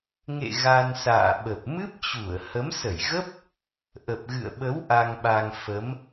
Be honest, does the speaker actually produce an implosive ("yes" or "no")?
yes